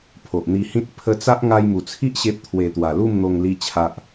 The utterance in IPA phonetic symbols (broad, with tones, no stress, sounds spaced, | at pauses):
pʰ o˨ ʔ n̪ i˧ h ĩ˦ t̚ pʰ ə˧ t͡s a˦ ʔ ŋ a˧ j m u˨˩ t͡sʰ i˦ ʔ ɕ e˦ p̚ t̪ʰ w e˧ t̪ w a˨˩ l u˥˧ m n̪ o˧ ŋ l i˦ t͡ɕʰ a˦ ʔ